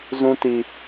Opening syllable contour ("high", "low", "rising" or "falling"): high